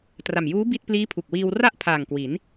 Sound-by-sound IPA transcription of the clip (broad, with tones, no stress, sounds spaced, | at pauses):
t r a˨˩ m j uː˦˥ b i˥˩ t̚ p l iː˦˥ pʰ u˨˩ k̚ w iː˧ w r a˥˩ ʔ pʰ aː˨˩ ŋ k w i˩˦ n